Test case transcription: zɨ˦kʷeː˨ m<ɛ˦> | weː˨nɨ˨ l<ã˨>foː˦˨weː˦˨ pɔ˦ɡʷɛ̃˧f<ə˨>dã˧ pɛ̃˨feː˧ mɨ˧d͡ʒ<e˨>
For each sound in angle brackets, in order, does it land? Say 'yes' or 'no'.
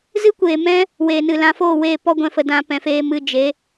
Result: no, no, yes, no

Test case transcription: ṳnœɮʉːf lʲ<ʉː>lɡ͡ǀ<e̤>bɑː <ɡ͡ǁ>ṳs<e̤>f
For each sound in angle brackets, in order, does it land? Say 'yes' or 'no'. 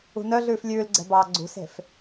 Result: yes, no, no, yes

